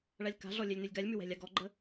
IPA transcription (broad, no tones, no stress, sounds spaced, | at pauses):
ɭ a lʲ k a̤ ɮ ɔ lʲ ɛ lʲ n ʉ lʲ ɡ a lʲ m ʉ w ɛ̤ lʲ a ɡ ɔ ɡ͡ǃ ə